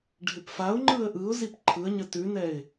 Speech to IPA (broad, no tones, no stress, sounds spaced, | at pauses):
ɖʱ ɪ p f a ʊ̯ ŋ͡ǃ ɯ ə̯ ʔ ɯ ʊ̯ z i p ǃʰ ɯ ə̯ ɲ ə t ʉ n ɛ ɪ̯